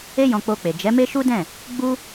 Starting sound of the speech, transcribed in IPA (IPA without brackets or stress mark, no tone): e